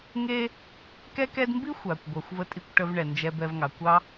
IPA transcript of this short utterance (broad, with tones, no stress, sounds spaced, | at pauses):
ŋ e˦ | k ɛ˦ k ɛ˦ d m b i˥ xʷ a˩ kʷ ɡʷ ɑ˩ xʷ v ə˨ tʼ i˨ kʷ ʈ ə˨ v ɳ ɛ˩ n d͡ʒ ɛ˨ b ɛ˨ v ŋ ɑ˩ kʷ ɑ˨